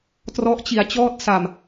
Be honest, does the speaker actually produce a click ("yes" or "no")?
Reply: no